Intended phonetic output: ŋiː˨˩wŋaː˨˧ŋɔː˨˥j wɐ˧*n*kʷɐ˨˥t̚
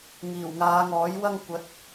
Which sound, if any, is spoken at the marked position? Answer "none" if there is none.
ŋ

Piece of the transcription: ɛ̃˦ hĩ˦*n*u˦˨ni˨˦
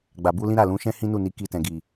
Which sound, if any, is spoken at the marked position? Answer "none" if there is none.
n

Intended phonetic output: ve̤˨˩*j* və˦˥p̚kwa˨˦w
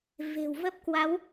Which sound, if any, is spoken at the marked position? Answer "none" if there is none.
w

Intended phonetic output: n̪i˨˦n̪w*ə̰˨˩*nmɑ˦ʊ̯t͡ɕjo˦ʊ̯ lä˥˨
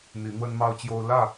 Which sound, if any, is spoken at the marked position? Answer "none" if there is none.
ə˦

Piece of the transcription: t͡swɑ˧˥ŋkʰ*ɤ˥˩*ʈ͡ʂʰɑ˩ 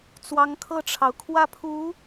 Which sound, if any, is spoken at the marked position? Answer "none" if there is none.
ɤ˥˩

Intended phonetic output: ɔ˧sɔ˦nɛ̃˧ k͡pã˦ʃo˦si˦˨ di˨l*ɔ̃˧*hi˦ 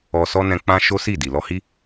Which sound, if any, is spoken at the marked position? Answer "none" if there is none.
ɔ˧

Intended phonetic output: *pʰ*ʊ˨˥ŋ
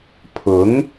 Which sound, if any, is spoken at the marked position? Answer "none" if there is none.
pʰ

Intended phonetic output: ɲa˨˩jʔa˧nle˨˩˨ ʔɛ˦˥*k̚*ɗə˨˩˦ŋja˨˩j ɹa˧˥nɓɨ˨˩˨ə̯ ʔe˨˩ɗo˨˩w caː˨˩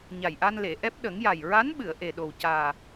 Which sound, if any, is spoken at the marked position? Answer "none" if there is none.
p̚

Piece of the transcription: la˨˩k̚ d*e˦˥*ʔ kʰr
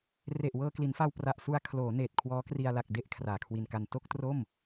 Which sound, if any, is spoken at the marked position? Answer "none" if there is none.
e˥˩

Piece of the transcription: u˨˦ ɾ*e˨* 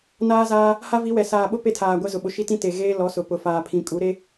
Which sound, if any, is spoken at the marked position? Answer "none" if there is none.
e˦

